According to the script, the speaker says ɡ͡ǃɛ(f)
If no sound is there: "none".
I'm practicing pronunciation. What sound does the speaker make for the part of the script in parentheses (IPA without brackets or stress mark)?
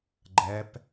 p